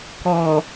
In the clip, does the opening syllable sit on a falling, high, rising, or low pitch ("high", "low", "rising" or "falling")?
low